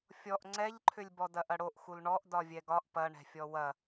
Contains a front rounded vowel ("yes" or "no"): yes